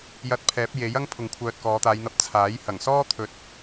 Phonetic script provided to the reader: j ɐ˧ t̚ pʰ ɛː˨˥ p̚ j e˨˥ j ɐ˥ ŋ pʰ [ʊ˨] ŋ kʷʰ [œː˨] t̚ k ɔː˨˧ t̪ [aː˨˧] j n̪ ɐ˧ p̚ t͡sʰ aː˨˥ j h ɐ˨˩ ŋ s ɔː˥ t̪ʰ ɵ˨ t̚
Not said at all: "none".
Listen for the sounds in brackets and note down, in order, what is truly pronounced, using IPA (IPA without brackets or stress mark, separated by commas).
ʊ˨, œː˨, aː˨˧